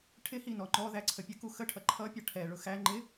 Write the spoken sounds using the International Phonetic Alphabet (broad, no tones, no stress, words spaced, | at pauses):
ʈʰɪhi nɔŋ͡ǃɔðæ ǀʰəpʲəku xəʈʰʌ ǃʰʌpʲʌ ʈʰɛɭʊ xæ ŋ͡ǃɪ